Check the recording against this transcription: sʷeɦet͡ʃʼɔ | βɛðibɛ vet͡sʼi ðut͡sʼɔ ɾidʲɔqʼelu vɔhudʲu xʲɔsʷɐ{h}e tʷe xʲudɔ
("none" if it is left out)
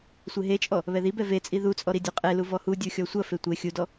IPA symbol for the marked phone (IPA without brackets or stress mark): f